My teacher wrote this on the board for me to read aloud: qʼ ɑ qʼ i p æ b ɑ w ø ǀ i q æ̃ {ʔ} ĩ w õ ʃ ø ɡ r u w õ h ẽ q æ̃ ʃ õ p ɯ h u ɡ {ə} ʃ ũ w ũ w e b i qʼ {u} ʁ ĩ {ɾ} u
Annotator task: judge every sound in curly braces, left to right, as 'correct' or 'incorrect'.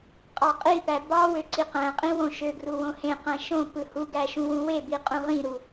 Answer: incorrect, incorrect, incorrect, correct

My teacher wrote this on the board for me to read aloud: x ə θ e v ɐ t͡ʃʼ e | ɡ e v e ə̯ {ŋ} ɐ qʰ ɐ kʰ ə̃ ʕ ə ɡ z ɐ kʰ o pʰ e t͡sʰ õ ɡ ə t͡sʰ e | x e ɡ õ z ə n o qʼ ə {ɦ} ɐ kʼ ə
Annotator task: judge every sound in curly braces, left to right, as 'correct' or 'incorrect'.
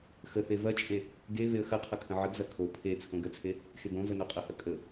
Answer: incorrect, incorrect

